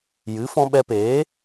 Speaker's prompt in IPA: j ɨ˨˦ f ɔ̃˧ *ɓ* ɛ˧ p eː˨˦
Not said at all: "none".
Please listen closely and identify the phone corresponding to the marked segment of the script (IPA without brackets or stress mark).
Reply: ɓ